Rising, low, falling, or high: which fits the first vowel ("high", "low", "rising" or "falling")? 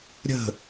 falling